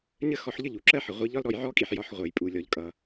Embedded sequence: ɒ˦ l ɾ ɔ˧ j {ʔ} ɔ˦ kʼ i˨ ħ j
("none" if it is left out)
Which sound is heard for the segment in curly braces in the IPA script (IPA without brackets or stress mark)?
ʕ